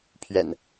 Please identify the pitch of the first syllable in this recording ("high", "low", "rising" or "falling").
low